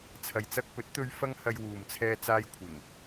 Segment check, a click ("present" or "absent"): absent